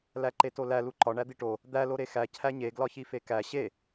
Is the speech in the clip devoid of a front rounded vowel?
yes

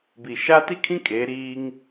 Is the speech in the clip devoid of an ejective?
no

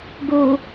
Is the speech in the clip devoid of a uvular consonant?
yes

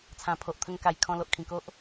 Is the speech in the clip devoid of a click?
yes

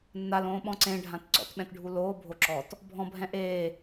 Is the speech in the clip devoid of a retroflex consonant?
no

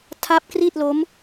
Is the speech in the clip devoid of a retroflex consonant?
yes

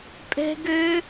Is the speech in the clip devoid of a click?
yes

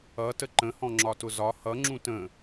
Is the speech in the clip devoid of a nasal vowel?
no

